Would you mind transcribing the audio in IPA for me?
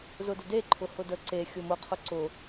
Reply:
z ʊ d ʊ d e ǃʰ ʊ h ʊ d ə ǀ e xʲ ʊ m ʊ qʰ ʊ ǀ ʊ

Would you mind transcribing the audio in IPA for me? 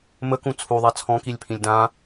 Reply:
m ə k ũ t͡sʰ u ðˤ a t͡sʰ ɔ̃ k i lʲ pʰ ĩ lʲ d ã

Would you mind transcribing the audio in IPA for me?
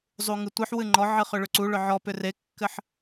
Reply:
zˤ u ŋ ɨ tʷ ɨ ħ w ɨ ŋ͡ǃ ɔ ʕ ɨ χ ʏ ɭ ʏ ǀ u ɭ ʏ ʕ ɔ p ʏ r e kː ɘ ħ

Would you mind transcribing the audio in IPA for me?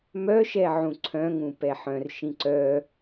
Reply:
m œ ʃ ɛ ʕ ũ ǀʰ œ̃ ŋ ũ p ɛ ħ œ̃ r ʃ ĩ ǀ œ

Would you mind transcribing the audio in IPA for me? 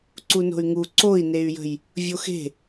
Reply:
ǀ u n o̤ y̯ ŋ u ǀ o i̯ n e y̯ j ə̤ j | vʲ o x e̤

